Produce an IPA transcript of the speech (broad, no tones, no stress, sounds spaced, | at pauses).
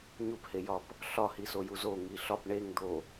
ɲ u p h e j ɒ p | ɬ ɒ h i s o j u z o ŋ i ɬ ɒ p ɳ e ŋ d̪ o